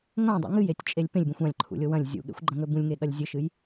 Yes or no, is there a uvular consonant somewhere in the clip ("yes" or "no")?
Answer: no